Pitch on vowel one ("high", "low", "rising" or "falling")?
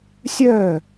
falling